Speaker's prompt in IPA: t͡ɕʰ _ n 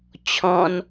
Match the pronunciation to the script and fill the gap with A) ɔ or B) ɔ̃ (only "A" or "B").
B